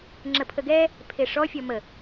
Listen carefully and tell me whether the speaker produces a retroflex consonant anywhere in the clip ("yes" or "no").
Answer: yes